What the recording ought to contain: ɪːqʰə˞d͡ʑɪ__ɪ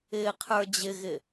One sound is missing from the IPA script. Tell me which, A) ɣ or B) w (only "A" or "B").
A